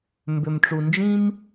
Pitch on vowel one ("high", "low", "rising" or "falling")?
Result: low